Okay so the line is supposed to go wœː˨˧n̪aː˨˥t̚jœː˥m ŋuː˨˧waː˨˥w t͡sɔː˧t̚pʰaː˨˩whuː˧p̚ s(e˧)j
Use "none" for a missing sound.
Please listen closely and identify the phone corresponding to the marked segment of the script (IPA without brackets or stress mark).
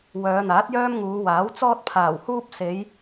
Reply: e˨˧